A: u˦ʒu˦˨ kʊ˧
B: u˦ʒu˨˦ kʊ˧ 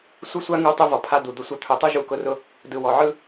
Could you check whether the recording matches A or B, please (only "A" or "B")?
B